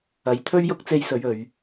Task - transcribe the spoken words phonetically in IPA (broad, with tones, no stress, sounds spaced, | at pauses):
ɐ˨˧ j t̪ʰ ɵ˥ ɥ j ʊ˥ k̚ t͡s e˧ j s ɵ˨˧ ɥ ɵ˨ ɥ